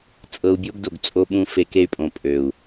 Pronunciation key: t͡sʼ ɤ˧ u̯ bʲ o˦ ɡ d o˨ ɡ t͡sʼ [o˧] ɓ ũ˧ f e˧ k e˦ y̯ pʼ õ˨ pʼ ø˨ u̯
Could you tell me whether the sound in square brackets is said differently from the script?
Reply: no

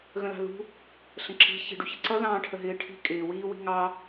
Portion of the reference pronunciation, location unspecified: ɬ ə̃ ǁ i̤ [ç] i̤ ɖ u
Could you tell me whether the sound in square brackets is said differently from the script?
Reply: no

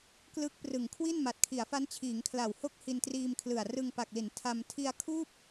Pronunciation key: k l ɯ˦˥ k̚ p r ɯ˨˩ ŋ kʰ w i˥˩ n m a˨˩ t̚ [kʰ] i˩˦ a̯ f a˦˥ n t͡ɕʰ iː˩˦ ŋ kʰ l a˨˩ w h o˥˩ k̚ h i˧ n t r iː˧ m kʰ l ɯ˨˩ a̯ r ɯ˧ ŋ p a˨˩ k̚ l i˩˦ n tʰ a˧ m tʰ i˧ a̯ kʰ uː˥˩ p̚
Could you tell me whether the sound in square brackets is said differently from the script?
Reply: no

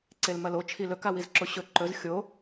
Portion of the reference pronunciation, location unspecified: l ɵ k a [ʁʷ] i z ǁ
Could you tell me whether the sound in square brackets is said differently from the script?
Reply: yes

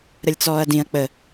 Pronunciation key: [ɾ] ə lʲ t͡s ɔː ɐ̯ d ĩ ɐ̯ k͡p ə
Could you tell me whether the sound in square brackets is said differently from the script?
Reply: no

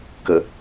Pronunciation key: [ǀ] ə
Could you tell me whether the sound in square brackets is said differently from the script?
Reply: yes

